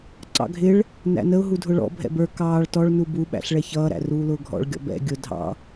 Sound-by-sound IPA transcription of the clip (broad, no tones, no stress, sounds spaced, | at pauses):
ǀ ɑ̰ ɡʱ ɪ ɭ | n æ̰ n ə ʊ̯ ɦ u dʱ ʊ ɭ ɔ̰ bʱ ɛ̰ b ə˞ k ɑː ɭ t ɔ ɭ n u b u ɓ æ̰ ɬ ɭ ɛ ç ʌː ɾ æ̰ r uː l ʊː ɡʱ ɔ̰ ɭ ɡʲ ɔ̰ b ɛ̰ ɡʲ ʊ dʱ ɑ̰